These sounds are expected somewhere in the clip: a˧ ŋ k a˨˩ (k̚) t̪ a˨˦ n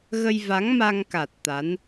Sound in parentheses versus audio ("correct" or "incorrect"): incorrect